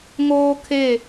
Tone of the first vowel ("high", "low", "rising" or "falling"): high